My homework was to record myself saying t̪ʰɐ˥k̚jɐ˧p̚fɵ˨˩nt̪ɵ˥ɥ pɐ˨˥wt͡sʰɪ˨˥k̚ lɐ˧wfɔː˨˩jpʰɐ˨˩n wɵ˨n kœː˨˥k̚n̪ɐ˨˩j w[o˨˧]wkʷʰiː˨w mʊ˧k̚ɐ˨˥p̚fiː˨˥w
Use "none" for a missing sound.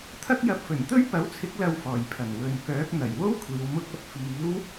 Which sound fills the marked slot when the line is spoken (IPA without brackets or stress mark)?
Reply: o˥